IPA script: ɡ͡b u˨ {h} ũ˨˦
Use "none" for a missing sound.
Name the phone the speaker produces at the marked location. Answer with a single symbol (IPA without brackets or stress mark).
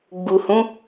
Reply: h